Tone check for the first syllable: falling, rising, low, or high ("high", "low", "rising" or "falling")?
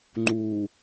low